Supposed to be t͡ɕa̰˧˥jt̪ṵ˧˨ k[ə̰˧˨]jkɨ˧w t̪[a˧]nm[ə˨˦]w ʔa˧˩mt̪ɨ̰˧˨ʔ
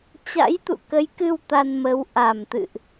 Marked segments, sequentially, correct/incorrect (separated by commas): incorrect, correct, correct